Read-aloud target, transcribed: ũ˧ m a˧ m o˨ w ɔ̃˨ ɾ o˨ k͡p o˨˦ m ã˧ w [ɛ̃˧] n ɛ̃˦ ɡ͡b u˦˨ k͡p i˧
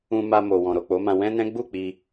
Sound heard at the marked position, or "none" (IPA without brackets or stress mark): ɛ̃˦